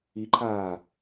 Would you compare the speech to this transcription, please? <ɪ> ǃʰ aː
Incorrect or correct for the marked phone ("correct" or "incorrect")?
incorrect